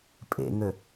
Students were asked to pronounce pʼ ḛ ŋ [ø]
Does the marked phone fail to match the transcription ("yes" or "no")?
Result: no